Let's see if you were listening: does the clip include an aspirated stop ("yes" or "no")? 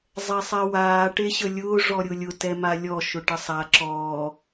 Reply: no